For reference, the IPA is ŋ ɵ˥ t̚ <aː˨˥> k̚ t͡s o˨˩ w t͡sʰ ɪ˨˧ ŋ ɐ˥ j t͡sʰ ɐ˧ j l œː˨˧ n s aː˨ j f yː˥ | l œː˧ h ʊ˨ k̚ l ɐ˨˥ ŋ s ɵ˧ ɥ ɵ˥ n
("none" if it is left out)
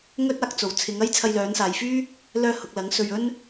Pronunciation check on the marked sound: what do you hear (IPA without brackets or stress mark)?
aː˨˥